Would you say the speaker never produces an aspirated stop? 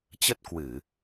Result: yes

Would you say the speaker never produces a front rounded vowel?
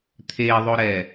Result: yes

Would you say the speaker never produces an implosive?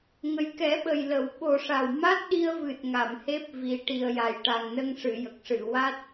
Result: no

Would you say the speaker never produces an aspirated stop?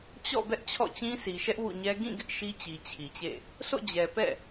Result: no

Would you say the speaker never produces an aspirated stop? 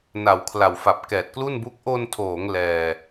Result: no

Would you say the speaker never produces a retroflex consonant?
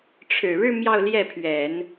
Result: no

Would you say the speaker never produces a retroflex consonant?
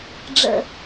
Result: no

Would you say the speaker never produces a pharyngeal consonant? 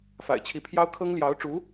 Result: yes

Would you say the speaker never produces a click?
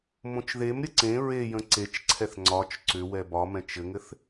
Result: no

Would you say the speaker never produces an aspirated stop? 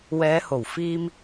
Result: yes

